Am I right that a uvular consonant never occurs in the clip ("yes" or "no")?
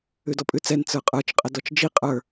no